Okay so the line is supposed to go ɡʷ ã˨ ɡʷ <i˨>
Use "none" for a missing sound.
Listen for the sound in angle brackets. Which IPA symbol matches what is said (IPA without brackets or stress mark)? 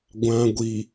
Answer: i˨